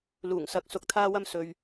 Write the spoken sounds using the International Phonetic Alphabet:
l uː˨˩ ŋ s ɐ˨˥ k̚ s ʊ˨ k̚ t̪ʰ aː˧ w ɐ˧ m s ɵ˨ ɥ

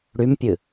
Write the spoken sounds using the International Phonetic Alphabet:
ɽ y m pʲ ɨ

